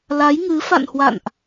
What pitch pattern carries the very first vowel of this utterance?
rising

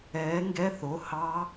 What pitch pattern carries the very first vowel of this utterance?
rising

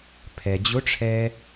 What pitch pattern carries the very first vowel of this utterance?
low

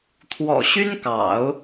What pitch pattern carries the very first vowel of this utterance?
low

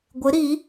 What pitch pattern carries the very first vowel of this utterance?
rising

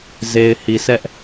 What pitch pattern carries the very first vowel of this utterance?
low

